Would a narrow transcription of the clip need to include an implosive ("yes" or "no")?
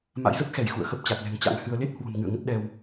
yes